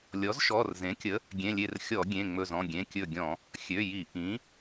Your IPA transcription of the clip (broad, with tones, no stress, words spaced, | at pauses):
lʲɔ˩˥zʃɔ˩˧˩rzẽ˩˥kʲə˩˥ | ɡʲẽ˩˧˩lʲe˧˩r xʲɔ˧˩˧ ɡʲẽ˩˧˩ŋ͡mɵ˧˩zɔ̃˩˧˩ɡʲẽ˩˧˩ kʲɵ˧˩ɡʲɔ̃˧˩˧ | xʲø˩˧˩ji˧˩˧ ʔĩ˩˥